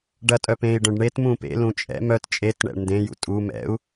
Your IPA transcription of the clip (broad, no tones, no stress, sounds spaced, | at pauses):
ɖ ɐ tʼ œ p ẽ i̯ ɖ œ̃ ɖ ɳ e t m ũ p ḛ l ũ t͡ʃʼ ɛ̰ m œ t t͡ʃʼ e t ɳ ɛ̰ ɳ n d ẽ j ṵ tʼ u m ɛ̰ u̯